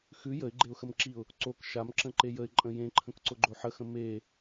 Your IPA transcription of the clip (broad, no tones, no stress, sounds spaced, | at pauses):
x ʉ j ə ɪ̯ ɡ͡ǃ e ʊ̯ x ə m ǁ i ʊ̯ | ǀ o k ʃ a m ǁ ə̃ ǃ e j ə ɪ̯ ǃʼ ə̃ j ẽ ǃʰ ə̃ k ǀ ʊ ɡ͡ǃ o ħ ə x ə̃ m e